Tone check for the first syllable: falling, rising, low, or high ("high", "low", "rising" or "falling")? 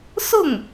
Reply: falling